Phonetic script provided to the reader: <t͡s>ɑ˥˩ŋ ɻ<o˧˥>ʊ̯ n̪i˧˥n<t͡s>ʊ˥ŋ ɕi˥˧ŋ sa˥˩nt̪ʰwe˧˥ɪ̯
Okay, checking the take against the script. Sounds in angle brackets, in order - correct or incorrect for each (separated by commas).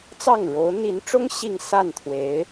correct, correct, incorrect